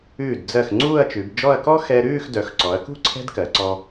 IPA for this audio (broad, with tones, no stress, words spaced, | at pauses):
ʉː˧˩dd͡zɜ˧˩x ŋ͡ǀuː˥˧ɐ̯t͡ʃʉ˩˧bd͡ʒɔ˥˧ɐ̯ kɔ˥xɛ˧ ɾʉː˥˧xdœ˩˧xǀɔ˩˧ɐ̯kṳ˥˧ ǀʰɛ̤˥dkɜ˩˧ǀɔ˧